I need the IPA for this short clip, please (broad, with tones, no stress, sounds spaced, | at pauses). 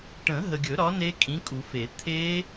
ʈ ə̃˨˩˦ ɦ ə˨ ɡʲ ɵ˨˩˦ ɾ ɒ˨˥ n e˦˥ kʼ ĩ˨˥ kʼ u˨˩˦ f e˨˩˦ t̪ʰ e˦˥